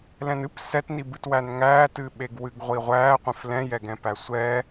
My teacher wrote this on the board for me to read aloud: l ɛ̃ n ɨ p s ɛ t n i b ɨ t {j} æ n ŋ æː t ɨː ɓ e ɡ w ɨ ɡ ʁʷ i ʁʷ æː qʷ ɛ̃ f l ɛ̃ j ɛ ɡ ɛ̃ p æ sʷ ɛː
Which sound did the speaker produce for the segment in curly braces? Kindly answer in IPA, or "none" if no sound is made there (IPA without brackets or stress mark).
w